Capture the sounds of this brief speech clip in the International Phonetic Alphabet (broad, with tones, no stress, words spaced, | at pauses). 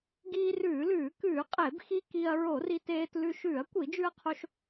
ɡiː˧rʉː˧˩˧lʉː˧˩˧ kʉː˧˩˧qʼe˧˩˧bxi˧ ki˧ɐ̯ ɹo˧˩˧ri˧teː˧tlʉ˧ ʃʉː˧˩˧ɐ̯kʷi˧˩˧d͡ʒʉ˧ɐ̯qʰo˧ʃ